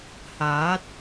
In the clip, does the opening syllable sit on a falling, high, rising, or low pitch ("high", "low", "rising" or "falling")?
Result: rising